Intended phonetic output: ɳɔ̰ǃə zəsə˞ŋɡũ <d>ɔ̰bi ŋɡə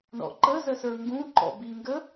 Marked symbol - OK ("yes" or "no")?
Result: no